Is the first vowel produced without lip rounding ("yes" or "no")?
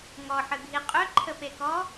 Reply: no